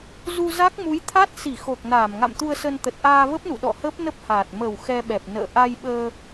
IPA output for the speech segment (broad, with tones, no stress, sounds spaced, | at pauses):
z u˧ z a˦˥ k̚ m u˨˦ j t̪ʰ a˦˥ t̚ s i˧˩ x o˨˩ k̚ n aː˧˩ m ŋ a̰˧˨ m t̪ u˧ ə̯ s ə˧ n t̪ ə˨˩ t̚ ʔ aː˧ v ə˦˥ p̚ n ṵ˧˨ ɗ ɔ̰˧˨ h əː˦˥ p̚ n ə˦˥ p̚ h aː˨˩ t̚ m ə˨˩ w x ɛ˧ ɓ ɛ˨˩ p̚ n ə̰ː˧˨ ʔ a˧ j ɓ əː˧